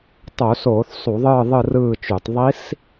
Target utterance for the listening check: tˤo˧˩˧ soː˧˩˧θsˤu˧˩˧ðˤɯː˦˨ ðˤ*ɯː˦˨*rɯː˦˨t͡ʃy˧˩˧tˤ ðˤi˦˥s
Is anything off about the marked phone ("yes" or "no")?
yes